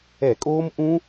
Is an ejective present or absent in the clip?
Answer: present